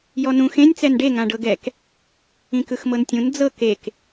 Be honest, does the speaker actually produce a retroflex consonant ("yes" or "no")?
yes